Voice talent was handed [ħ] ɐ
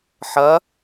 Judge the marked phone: correct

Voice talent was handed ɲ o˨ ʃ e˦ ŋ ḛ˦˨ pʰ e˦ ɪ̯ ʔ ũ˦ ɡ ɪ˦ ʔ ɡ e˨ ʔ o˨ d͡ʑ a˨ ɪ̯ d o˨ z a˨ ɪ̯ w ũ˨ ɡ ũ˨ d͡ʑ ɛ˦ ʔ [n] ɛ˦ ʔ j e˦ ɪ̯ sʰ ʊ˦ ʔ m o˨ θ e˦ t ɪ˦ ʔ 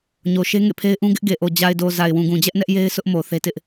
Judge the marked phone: correct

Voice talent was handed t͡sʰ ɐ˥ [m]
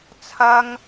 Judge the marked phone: incorrect: ŋ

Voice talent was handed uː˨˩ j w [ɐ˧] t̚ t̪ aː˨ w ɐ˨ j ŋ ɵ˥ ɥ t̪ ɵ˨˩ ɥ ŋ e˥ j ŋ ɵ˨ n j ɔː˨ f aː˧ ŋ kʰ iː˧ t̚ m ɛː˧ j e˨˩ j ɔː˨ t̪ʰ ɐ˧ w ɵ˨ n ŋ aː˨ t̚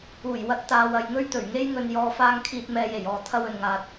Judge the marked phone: correct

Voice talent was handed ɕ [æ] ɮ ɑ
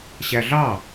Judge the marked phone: correct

